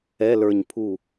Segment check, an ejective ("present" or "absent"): absent